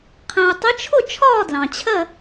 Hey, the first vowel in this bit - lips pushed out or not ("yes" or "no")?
no